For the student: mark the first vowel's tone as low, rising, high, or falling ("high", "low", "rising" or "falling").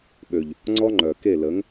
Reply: low